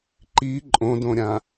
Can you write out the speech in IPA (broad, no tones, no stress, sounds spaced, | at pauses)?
ǃ i ǃʼ õ d õ ɾʲ ã